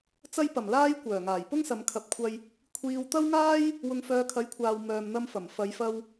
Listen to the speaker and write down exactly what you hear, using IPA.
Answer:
t͡sɐ˧jpɐ˨˩mlaː˧j kʷœː˨˩ŋaː˨˩j pʊ˥ŋsɐ˨˧mkʰɐ˨p̚kʷʰɐ˧j | kʷʰiː˨wt̪ɐ˥wŋaː˥j | wʊ˨ŋfœː˨˧kʰɐ˨˥jkʷʰaː˨w mœː˨mn̪ɐ˧mfɐ˨˩m fɐ˨˧jfɐ˧w

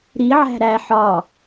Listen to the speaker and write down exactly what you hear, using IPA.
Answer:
ɾi ʕæ̤ɾæ ħɒ

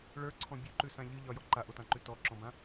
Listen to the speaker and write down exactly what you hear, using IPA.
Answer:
ɭə˞ǀʰɔ̃ bʲʉǃʉsã ʎɨʎɒjɔ ǃaʔotãǃʉ tɔǁɔ̃bã

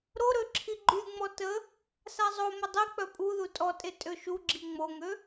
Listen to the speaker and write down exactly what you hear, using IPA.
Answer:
ɾoɾø ǁʰiɡ͡ǃyŋ͡mɔ tə | sazˤomə dˤik͡pœ pʼuðu tʼɔtʼe tʼøʃuɡ͡ǁi ŋ͡moŋø

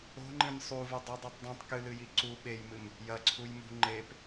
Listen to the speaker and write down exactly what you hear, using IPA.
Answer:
o̤ŋ͡ǃĩm sˤuvo dˤudˤɨtˤ dˤĩtˤ kɨlɨji ǀu ɓejmɨm | jɐǀʰujmṳ ŋ͡ǃep

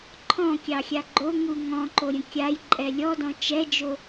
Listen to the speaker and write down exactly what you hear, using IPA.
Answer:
ǃʰɔ̃kʲɑxʲa ɡ͡ǃoŋu ŋɔ̃ǃoɾʲə̃ kʲajǃʼɛ lʲɔdɔ̃ t͡ʃɛd͡ʒo

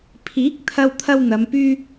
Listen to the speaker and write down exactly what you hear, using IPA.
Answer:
pʰiː˨˥k̚ t̪ʰɐ˧wt̪ʰɐ˧w n̪ɐ˨˧mpyː˥

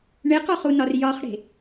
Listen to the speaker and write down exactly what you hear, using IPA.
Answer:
ɳeqɔχunɒr jɒχɽe̤

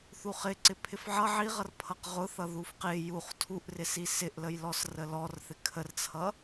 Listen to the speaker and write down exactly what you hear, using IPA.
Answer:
θuχɪ ǀɪpʰɪfʕʌ ʕiʁʌr pʰʌqʁʊθʌ ðufqɪ juχ tʰuʔrɪsi sɪʔləjlɔs rəlɔr θɪkʰərt͡sʰʌ

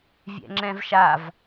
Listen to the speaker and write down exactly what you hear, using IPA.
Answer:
vʲɛ̰ŋ͡ǁɛ̃vʃav

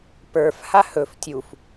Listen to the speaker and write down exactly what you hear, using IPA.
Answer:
pə˞f hahɵf tʲuf

